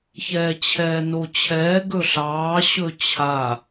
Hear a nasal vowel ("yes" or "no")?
no